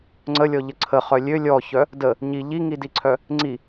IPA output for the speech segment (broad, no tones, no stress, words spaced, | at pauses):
ŋ͡ǀəlʲɔʎə ǀʰəχœ lʲø lʲɔçœ | də | ɲi ʎiŋidiǀʰœ | ŋ͡ǀi